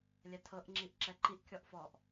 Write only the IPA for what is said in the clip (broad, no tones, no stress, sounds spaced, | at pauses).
lʲ ɛ tʰ ɤ ʔ ŋ͡ǁ i ʔ ǁ ɛ ǃ i ʔ kʲ ɔ ʔ f ɔ ʔ